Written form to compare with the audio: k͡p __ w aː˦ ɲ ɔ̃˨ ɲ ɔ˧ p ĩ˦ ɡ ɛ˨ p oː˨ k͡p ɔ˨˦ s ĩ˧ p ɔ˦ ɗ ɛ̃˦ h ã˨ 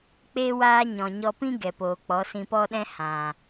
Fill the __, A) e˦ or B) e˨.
A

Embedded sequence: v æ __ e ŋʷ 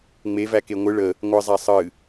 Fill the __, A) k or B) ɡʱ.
A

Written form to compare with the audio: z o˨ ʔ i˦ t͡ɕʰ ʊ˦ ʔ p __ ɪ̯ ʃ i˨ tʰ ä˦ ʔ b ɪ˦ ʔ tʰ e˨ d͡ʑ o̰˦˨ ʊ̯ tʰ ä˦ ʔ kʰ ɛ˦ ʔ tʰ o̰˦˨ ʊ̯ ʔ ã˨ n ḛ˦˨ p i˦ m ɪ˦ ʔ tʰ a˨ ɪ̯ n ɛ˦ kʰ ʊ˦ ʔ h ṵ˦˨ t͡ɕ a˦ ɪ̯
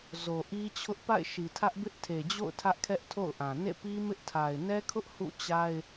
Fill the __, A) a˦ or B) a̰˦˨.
B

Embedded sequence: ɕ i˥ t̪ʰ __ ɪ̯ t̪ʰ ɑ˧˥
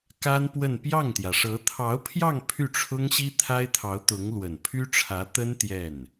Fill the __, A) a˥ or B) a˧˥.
A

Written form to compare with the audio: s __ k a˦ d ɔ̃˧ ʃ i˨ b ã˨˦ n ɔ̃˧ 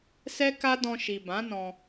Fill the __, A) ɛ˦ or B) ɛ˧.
A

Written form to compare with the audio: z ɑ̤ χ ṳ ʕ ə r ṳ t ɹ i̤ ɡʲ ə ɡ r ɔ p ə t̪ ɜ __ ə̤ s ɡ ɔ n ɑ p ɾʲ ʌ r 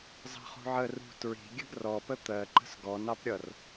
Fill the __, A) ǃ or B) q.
A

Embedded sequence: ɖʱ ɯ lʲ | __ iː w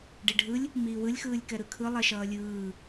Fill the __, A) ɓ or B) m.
B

